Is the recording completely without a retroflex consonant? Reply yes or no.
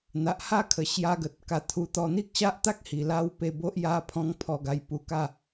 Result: yes